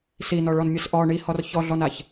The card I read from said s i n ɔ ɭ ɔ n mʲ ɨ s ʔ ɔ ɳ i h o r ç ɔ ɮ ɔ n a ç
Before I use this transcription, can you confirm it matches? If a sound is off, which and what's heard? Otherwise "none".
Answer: o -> ɔ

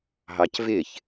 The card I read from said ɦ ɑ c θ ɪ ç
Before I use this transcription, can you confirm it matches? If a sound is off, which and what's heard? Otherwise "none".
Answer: θ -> v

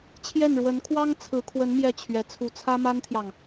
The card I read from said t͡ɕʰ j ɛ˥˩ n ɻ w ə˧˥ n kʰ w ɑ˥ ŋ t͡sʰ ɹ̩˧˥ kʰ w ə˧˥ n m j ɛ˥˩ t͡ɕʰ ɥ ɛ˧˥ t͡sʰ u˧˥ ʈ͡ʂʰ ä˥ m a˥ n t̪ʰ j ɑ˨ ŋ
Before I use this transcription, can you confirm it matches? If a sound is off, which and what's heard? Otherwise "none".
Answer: ʈ͡ʂʰ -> t͡sʰ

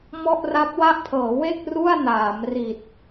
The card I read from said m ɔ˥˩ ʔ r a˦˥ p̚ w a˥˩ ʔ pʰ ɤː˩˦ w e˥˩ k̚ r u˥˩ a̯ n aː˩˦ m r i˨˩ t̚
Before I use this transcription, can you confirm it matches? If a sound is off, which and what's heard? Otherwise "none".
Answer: none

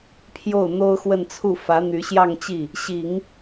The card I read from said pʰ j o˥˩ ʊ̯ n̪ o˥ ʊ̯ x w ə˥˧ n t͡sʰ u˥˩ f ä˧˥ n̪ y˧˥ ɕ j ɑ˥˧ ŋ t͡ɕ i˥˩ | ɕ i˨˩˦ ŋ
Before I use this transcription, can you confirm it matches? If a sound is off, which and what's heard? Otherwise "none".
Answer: none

